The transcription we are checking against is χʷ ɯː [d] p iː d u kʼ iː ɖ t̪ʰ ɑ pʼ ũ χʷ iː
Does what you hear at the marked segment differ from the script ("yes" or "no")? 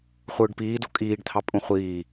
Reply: yes